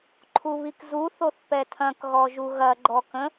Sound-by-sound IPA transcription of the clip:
ǃʰ u β i k z u θ o θ p ɛ tʰ ɐ̃ k ɣ ɔ ʒ u ɣ ɐ ɡ͡ǃ ɔ k ə̃

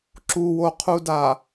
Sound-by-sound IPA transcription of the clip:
ǁ u w o qʰ u d a

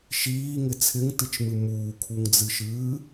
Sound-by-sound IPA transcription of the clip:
ʃ iː ŋ ɪ t͡sʰ ɪ ŋ t ɨ t͡ʃ m ɨ m uː kʰ u ŋ d͡z ɨ ʃ ɨː

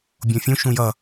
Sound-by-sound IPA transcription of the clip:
bʲ õ fʲ ũ ʃ ũ j ʌ

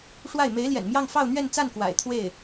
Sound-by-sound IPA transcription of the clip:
ʂ w a˥˩ ɪ̯ m e˧˥ ɪ̯ l j ɛ̰˨˩ n m j ɑ˥˧ ŋ f ɑ˥˧ ʊ̯ n̪ ɥ ɛ˥˧ n t͡s a˥˩ n k w a̰˨˩ ɪ̯ t̪ʰ w e˥˩ ɪ̯

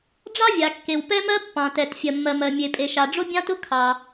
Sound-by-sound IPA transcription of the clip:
ɖ͡ʐ ɑ˥ vʲ a˩ kː e˩ w p ɛ˥ m ɜ˥ pː ɑ̃˩ t ɛ˩ t fʲ ɜ˩ mː ɜ˩ m ɜ˩ mʲ e˩ pʼ e˩ ʃ a˩ ɖ͡ʐ ʊ˥ bʲ ɑ̃˥ t ʊ˥ kʰ ɑ˩

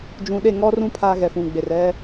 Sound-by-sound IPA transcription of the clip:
d͡ʒ ũ˨ ɗ e˦˨ ŋ ɔ˦ r ũ˦ pʰ aː˦ ɣ ɛ˨ f ũ˨ ɡ͡b e˨ r ɛ˦

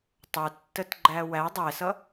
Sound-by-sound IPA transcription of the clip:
tˤ u tː ə t ɡ͡ǃ æ w æ dˤ ɛ s ʌ

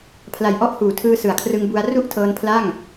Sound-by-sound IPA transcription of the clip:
pʰ l a˨˩ j ʔ ɔ˥˩ ʔ h uː˨˩ tʰ ɯː˧ s ɯ˨˩ a̯ kʰ r ɯ˧ ŋ b u˧ a̯ r u˥˩ ʔ tʰ ɤː˧ n pʰ l a˥˩ ŋ

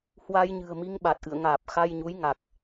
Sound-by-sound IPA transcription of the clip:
h w a˧ j ɲ ɨ̤˨˩ ə̯ m i˧ ŋ ɓ a˨˩ t̚ ʔ ɨ̰˧˨ ə̯ ŋ aː˨˩ p̚ x a˧ j ɲ u˨˦ j ŋ a˨˩ k̚

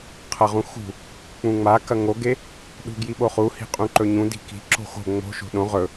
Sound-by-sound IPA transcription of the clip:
qʰ ɐ ʁ ũ x ṳ | k͡p ũ ŋ͡m a k ɐ ŋ o ɡ e | ɗ ṳ ɡ j i ɓ o χ u h i̤ qʼ ũ ǃ ɵ ɲ ũ d i̤ k i̤ ǁ o̤ x o̤ ŋ͡m o̤ ʃ o̤ ɗ õ ʁ ɵ

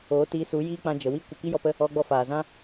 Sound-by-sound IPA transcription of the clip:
oː˨˦ t iː˧ s u˨˦ j iː˦ k͡p ã˧ d͡ʒ ə˨ w i˦ kʷ ə˧ k i˦ j ɔ˧ p ə˦ | ɔ˧ ɡ͡b ɔ˧ f aː˨ z ã˦

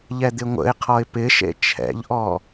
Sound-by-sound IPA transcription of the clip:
ʎ ɛ d̪ ɪ ŋʷ ə̰ ɪ̯ qʰ ɔ ɪ̯ p ɪ ʃ ḛ t͡ʃʰ ɛ̰ ʎ ʔ ɔ

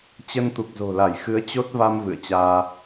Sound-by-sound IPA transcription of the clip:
t͡ɕ ə˧ n t̪ u˨˩ k̚ z o̤˨˩ l a˧˩ j x ɨ˨˦ ə̯ t͡ɕ o˦˥ t̚ v a˧ m v ɨ̰˧˨ ə̯ t͡ɕ aː˧

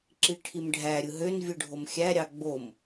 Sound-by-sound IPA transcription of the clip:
ǁ i ʈʰ i m ɖʱ æ ɾʲ ɯ ɦ ø n vʲ ɯ ɖʱ o m xʲ æ ɾʲ ɑ ɡ͡b o m

